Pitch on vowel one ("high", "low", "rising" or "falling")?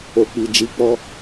low